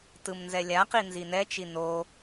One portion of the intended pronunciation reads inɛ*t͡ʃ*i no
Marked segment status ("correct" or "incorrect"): correct